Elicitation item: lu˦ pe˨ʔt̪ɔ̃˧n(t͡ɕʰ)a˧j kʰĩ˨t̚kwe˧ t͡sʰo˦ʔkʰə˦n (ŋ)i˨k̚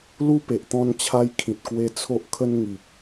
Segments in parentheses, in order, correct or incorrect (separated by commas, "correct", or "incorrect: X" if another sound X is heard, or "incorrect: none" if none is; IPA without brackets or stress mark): correct, correct